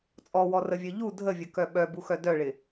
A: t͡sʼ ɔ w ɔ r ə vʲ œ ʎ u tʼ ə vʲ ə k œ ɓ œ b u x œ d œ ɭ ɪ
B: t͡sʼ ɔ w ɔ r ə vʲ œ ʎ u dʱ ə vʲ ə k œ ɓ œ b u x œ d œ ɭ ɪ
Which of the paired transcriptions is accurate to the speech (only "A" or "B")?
B